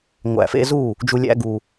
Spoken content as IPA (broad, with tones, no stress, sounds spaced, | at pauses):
ŋʷ æ̰˨ f ḛ˧ z u˦˨ | d͡ʒ u˨ lʲ æ̰˧ ɡ u˨